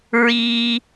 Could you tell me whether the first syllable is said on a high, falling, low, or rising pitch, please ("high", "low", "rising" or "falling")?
high